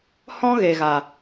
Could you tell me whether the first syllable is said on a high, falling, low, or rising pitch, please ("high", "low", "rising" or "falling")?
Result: high